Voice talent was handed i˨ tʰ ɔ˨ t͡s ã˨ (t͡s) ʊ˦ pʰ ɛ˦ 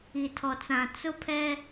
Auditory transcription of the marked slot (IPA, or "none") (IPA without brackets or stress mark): t͡s